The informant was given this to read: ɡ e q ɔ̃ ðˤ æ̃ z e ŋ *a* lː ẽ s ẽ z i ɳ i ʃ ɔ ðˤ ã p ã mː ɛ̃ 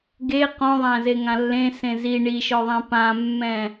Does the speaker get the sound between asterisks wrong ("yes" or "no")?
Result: yes